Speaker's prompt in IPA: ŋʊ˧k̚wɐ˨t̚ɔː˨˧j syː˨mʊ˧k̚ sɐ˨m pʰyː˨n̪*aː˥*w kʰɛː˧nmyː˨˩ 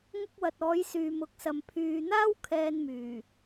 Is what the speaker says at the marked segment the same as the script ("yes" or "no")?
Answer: yes